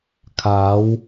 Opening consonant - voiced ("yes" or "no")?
no